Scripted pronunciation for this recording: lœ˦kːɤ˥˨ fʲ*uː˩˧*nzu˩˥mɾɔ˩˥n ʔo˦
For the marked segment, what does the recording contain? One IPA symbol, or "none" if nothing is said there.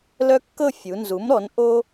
u˩˧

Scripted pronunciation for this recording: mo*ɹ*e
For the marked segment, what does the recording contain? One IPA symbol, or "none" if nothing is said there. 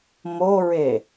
ɹ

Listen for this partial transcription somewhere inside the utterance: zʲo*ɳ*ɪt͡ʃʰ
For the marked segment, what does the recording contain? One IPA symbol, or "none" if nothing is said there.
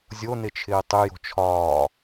n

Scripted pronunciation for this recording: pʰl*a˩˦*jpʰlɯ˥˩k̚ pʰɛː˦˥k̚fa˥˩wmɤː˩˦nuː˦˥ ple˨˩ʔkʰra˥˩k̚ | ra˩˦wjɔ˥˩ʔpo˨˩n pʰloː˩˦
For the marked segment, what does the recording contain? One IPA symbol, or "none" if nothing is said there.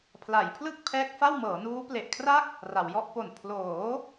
a˩˦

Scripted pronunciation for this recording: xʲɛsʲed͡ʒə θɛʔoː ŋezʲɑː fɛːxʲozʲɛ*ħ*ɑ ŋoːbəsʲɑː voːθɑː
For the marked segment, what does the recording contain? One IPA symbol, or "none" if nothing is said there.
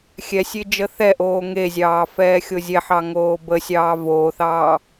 ħ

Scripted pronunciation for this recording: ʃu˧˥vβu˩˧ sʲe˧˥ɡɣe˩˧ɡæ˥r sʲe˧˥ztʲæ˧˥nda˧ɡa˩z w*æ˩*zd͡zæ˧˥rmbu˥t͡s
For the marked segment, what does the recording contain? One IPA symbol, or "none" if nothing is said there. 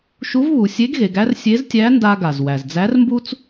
æ˩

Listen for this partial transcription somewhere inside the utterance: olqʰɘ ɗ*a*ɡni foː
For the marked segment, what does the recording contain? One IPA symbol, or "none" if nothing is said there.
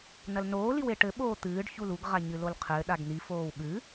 a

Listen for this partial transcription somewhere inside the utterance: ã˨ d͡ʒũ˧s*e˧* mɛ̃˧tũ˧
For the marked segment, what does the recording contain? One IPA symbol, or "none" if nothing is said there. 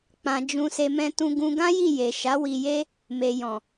e˧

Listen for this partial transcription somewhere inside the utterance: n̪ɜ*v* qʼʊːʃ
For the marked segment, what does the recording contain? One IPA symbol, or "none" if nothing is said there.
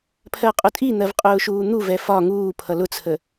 v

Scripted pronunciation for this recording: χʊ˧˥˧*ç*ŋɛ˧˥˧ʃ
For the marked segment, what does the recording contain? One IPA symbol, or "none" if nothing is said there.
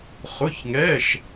ç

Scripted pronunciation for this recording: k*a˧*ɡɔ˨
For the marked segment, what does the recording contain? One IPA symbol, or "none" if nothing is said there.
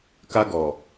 a˧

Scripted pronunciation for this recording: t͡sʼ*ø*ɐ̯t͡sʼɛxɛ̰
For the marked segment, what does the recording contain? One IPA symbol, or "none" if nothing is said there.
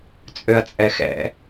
ø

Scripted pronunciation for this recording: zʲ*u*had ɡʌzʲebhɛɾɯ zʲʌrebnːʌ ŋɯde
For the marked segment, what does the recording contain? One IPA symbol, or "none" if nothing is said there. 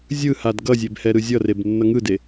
ɯ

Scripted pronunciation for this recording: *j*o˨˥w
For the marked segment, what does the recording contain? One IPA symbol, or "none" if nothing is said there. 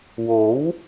w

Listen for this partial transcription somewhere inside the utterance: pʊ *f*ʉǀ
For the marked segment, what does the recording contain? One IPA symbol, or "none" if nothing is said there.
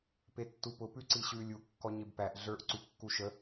p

